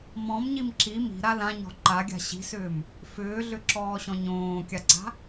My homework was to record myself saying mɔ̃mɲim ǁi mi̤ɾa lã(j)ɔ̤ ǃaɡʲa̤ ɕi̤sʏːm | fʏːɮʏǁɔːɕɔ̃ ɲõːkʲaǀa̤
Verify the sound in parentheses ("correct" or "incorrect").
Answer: incorrect